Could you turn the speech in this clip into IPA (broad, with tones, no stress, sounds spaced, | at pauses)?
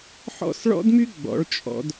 ħ ɔ̰˦˨ s ɭ ɔ̰˦ d m y˦ ɡ͡b ɔ̰˨˦ ɭ t͡ʃʼ ɔ̰˧ d